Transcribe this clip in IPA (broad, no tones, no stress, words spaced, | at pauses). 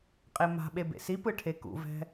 qʼema̤ɓe bḛsipɯ ʈʰekṵvɛ̤